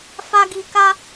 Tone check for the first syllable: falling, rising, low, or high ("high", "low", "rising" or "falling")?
high